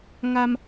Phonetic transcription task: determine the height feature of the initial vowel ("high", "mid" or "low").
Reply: low